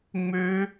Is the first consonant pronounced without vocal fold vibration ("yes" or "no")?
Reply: no